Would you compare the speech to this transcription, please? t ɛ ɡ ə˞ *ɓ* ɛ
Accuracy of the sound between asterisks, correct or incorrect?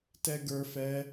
incorrect: f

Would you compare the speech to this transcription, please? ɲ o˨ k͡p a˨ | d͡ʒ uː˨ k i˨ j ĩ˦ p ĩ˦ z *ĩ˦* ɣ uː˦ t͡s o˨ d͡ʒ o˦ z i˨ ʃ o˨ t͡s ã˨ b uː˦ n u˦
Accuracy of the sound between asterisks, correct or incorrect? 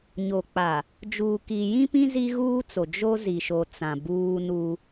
incorrect: i˦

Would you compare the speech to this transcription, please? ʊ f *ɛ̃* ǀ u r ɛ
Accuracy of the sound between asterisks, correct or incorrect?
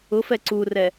incorrect: ɛ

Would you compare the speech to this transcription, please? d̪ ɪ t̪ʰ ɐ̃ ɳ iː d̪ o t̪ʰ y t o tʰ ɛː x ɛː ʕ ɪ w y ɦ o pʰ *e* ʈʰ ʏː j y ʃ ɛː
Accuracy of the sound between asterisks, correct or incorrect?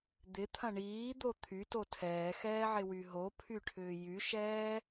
incorrect: y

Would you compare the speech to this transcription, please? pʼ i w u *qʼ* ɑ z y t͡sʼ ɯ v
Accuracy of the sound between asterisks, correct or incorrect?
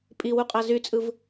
correct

